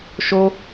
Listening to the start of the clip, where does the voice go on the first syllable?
high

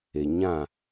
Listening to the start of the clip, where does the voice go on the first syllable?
low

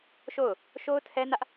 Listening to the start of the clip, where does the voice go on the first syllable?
falling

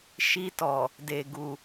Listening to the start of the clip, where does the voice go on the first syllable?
high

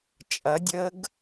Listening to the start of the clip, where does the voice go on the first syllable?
rising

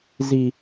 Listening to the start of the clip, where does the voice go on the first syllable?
low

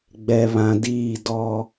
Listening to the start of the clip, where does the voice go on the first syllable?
low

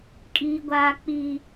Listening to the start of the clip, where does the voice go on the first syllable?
high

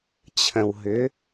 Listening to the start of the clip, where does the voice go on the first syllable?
low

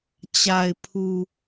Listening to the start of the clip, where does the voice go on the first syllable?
low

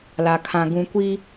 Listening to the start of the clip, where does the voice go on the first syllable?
low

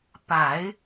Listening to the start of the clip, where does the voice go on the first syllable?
low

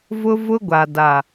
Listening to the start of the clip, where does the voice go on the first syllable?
high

